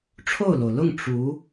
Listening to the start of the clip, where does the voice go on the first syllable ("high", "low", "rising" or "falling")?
falling